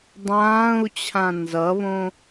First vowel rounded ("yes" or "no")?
no